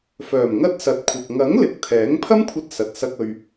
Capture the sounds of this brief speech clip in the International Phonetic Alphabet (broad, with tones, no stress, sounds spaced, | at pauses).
f œː˨˩ m ŋ ɐ˥ t̚ s ɐ˨˥ t̚ kʷʰ ɐ˨ k̚ ŋ ɐ˨˥ ŋ l ɪ˨˥ k̚ t̪ʰ ɛː˨˥ ŋ pʰ ɐ˥ m kʷʰ ɐ˧ t̚ s ɐ˨ t̚ s ɐ˧ k̚ ɵ˨ ɥ